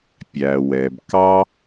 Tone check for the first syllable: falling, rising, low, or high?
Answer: low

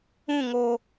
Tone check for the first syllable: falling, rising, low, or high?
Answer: falling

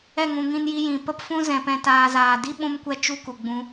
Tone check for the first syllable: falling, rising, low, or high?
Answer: falling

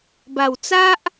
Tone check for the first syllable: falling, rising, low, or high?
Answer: low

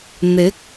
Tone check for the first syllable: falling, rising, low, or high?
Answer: rising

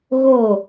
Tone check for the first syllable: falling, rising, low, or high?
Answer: falling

